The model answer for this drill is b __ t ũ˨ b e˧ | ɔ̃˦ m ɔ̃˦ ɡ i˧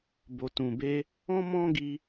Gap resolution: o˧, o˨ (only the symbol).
o˨